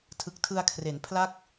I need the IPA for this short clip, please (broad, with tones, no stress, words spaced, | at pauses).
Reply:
tʰɯ˨˩k̚tʰɯ˧a̯kʰre˩˦n pʰla˥˩k̚